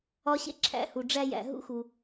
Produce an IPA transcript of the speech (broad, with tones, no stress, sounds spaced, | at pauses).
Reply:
ɒ˧ ɕ ḛ˦ ǁʰ æ̰˦ h u˨ ɖ͡ʐ æ˦ j æ̰˨ ɦ ṵ˦ x u˨